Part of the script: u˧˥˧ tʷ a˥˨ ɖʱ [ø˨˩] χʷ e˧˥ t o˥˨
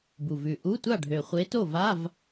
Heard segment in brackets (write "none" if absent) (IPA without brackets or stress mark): ø˨˩